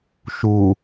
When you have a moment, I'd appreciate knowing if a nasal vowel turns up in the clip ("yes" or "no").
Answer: no